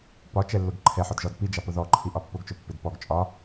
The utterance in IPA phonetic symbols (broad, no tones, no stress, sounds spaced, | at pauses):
p ɒ t͡ʃ ɛ lː ʊ ɡ ǃʰ ɛ ħ ɒ d ʒ ɒ d p i d͡ʒ ɑ p ʊ ð ɔ ǃʰ i ʔ ɒ pː ʊ ɡ t͡ʃ ʊ pː ɪ d p ɔ ɡ t͡ʃʼ ɒ